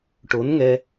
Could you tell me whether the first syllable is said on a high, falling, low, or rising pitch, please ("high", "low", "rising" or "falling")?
rising